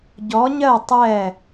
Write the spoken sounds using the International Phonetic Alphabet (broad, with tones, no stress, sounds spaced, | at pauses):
ɟ ɔ˧˥ ɲ ɜ˥˧ tˤ ɛ˥˧